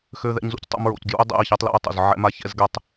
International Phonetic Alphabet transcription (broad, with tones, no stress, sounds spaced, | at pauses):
x ø˦ ð ɛ̰˦ ɲ z ṵ˦ c tˤ o̰˦ m ɹ o̰˨ c ɡ j ṵ˦ y̯ dˤ ɛ̰˦˨ i̯ ç æ˦ tˤ l ɛ̰˦ y̯ tˤ o̰˨ z ʕ ɛ̰˦ m a˦ ç ɛ̰˦ z ɡ ɛ˦ tˤ